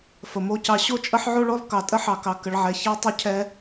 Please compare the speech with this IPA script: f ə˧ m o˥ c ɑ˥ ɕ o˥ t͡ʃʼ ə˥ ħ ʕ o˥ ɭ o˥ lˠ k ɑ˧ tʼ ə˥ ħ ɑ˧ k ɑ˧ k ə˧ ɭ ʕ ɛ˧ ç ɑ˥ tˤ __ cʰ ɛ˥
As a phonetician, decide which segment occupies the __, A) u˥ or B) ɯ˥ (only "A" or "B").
A